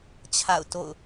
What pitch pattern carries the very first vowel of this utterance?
falling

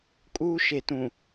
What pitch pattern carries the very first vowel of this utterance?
high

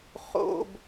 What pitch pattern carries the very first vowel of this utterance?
low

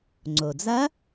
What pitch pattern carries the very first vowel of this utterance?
low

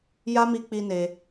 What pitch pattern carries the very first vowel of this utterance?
high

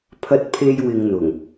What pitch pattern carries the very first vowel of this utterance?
high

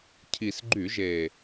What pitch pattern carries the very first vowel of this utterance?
low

